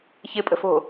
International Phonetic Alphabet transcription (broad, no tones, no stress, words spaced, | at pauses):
çɪpʼə̤fo̤